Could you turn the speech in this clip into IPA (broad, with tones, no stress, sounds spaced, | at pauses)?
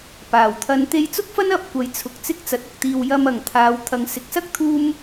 p aː˨˩ w t̪ʰ ɐ˧ n t̪ e˧ j t͡s ʊ˥ k̚ f ɐ˥ n ɐ˨˥ p̚ kʷ ɐ˨˧ j t͡sʰ ʊ˨ k̚ t͡s ɪ˥ k̚ t͡s ɐ˨˥ t̚ ʊ˨˥ k̚ t̪ iː˧ w j ɐ˧ m ɐ˨˩ ŋ t̪ʰ aː˨˧ w t̪ʰ ɐ˨ ŋ s ɪ˨ k̚ s ɐ˥ k̚ t̪ʰ uː˥ m